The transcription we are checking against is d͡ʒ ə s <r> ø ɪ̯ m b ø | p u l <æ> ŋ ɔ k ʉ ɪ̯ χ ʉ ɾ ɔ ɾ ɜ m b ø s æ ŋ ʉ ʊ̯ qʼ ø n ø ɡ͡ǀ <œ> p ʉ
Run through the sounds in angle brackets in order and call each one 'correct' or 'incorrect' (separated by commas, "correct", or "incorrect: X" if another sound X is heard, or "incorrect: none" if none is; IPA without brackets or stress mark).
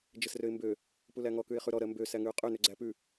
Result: correct, correct, incorrect: æ